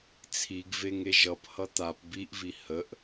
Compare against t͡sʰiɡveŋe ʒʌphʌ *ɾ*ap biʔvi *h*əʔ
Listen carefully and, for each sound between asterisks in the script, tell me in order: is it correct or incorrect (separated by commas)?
incorrect, correct